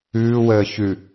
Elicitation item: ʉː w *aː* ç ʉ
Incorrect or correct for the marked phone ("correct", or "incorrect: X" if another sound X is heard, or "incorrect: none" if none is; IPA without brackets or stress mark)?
incorrect: əː